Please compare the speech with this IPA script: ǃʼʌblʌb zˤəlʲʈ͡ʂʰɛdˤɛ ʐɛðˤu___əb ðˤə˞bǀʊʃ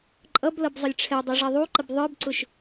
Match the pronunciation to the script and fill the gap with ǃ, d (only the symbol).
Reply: ǃ